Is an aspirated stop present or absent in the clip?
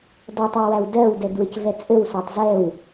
absent